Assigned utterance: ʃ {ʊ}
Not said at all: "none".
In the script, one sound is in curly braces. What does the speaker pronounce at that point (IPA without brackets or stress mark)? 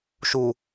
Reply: u